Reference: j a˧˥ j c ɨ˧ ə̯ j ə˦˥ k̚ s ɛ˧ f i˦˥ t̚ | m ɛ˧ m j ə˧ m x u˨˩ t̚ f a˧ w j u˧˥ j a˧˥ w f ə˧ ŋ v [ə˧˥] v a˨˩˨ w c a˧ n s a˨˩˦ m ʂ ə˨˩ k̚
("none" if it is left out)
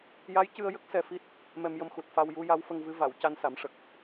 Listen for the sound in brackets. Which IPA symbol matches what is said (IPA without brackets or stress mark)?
ɨ˧˥